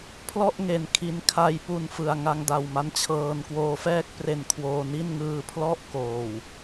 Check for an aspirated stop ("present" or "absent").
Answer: present